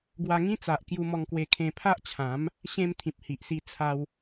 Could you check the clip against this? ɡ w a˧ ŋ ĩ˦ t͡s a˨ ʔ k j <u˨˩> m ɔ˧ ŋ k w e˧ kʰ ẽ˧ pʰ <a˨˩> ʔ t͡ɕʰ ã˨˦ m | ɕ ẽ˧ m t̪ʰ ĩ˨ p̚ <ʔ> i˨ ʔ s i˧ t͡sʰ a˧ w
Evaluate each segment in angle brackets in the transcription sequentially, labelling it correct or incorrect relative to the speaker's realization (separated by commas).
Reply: incorrect, incorrect, incorrect